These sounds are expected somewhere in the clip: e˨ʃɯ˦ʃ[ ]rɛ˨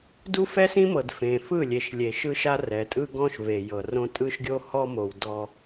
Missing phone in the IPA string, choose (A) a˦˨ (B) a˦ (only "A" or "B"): B